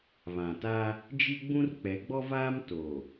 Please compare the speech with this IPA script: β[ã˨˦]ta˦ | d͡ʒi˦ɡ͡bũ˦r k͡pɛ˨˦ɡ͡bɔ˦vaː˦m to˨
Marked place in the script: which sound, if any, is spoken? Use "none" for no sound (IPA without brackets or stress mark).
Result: ã˨